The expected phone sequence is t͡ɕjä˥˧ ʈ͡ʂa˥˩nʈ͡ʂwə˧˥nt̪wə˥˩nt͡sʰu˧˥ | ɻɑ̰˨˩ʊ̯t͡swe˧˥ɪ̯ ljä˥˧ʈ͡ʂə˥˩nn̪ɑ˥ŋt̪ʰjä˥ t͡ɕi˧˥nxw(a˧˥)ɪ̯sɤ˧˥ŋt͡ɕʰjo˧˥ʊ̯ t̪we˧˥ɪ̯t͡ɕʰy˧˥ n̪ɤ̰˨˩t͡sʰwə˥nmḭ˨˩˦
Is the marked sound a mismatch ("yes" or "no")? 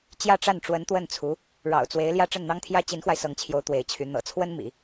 yes